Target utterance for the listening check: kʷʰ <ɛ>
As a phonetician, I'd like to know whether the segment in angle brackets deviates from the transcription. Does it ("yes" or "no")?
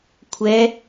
no